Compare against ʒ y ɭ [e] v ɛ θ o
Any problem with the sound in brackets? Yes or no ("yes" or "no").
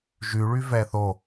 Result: yes